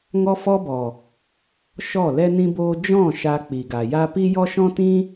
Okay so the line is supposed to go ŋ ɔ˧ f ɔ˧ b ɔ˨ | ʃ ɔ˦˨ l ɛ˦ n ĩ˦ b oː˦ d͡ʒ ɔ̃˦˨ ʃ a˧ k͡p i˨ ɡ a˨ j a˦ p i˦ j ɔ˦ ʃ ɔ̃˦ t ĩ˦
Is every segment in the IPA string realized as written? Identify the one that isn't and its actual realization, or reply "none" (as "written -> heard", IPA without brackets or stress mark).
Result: none